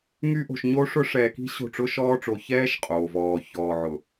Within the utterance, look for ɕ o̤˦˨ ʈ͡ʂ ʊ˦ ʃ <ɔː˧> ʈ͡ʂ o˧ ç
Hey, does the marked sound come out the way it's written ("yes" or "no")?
no